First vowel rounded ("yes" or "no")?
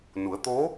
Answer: yes